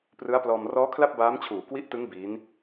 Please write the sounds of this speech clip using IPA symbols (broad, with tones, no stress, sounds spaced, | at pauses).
p r ɯ˦˥ a̯ p l ɔː˧ m r ɔː˦˥ kʰ l a˥˩ p̚ b aː˦˥ m t͡ɕʰ uː˨˩ k w i˦˥ ʔ t ɯ˦˥ ŋ b i˦˥ n